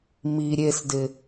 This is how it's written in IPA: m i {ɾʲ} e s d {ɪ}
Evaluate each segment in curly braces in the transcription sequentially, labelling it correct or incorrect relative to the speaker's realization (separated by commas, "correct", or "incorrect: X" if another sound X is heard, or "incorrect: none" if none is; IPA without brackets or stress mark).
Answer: correct, correct